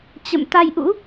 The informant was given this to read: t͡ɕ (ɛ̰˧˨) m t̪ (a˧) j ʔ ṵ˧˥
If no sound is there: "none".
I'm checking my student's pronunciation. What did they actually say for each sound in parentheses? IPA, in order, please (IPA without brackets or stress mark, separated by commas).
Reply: ə̰˧˨, a˧